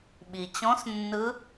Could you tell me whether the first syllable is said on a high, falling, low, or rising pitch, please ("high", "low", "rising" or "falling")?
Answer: low